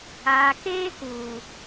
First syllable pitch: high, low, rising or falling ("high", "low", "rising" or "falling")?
low